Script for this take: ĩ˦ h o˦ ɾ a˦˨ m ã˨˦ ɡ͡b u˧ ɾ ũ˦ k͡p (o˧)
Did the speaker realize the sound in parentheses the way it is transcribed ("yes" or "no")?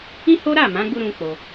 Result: yes